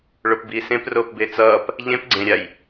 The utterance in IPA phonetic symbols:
ɭopbiːsẽp roːpbet͡sʌːp | ʎẽp ɡ͡ǀẽɾʲaj

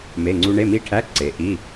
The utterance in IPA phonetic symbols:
me˧˥˧ŋ͡ǀu˦˥ ɳe˧˥˧mi˦˥ʈʰæ˧˥˧ ǀe˨˦ʔi˧˥˧

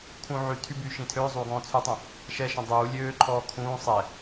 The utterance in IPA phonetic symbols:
kʰũ ʕy tʰybyː ʃĩtʰøːzˤuː ɡɔ̃ːt͡sʰytˤũ | ʃɛ ʃə̃dˤuː lʲøːǃʰɔː kʰũː sˤɛ

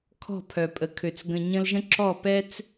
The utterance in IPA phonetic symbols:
kʰɔ̤˦˨pʰœ˨pʼə˨kʰø˨t͡s ɡə̃˨ɲə̃˧lʒə̃˦ ǁɔ˦˨pɛ˦t͡s

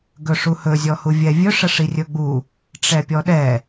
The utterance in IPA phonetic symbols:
ɡɵʂuhɵ zʲɔhuvʲɛvʲɵ ʂəʂirʲɵɡ͡bu | ʈ͡ʂɛpʲɔɗɛ

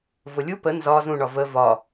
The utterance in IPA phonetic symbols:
vʊlʲu pə nzɒ zũɳɒ və vɒ

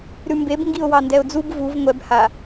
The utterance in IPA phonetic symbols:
ɾʉmbeb ŋɡiʊ̯wɑndɛʊ̯d͡zub vuv ŋʷɛb ha

